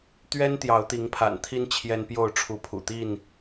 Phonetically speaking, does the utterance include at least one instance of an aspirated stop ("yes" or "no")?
yes